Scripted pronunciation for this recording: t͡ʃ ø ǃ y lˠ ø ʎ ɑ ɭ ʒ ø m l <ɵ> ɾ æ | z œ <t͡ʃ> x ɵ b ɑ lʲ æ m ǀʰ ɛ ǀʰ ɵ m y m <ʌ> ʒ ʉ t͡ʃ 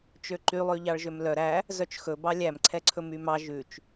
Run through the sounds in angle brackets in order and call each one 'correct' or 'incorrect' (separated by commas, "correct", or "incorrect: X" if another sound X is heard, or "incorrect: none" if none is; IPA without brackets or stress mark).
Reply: incorrect: œ, correct, incorrect: ɑ